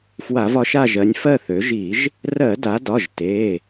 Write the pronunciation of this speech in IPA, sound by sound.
f w a˧˩˧ v ɒ˩˧ ʃ a˦˨ ʒ ɜ˩˧ nʲ f ɜ˦˨ θ ø˩˧ ʒ i˧˩˧ ʒ | r ɜ˧˩˧ d a˩˧ d ɒ˩˧˩ ʒ t e˩˧˩

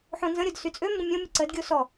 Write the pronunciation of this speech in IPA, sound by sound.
ħ õ n z ə̃ ɾʲ o d s y t͡sʼ ø m b ə̃ mʲ õ mʲ ə ǀ ə d ɡʲ o s ɔ

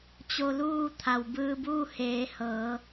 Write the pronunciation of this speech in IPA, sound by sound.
t͡ɕ o˧ l uː˥˨ t̪ʰ a˩ w b ɯː˧ b uː˥˨ h eː˩˧ h ɤː˩˧

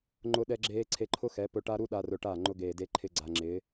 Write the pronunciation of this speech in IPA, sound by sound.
ŋ͡ǃ ʊ˦ ɗ ɛ˦ ɡ͡ǁ eː˦ ǀʰ e˧ ǃʰ ʊ˦ x ɛ˨˦ p ʊ˧ ʈ a˦ ɾ u˦ ɗ a˦ r ʊ˧ ʈ a˦˨ ŋ͡ǃ ʊ˧ ɡ eː˨ d e˧ ǃʰ ɪ˦ ɡ͡ǀ a˧ ŋ͡ǁ ɪː˨˦

